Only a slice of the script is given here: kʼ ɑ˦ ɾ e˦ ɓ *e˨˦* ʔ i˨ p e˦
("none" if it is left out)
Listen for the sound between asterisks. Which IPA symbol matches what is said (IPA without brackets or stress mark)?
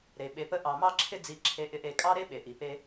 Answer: e˨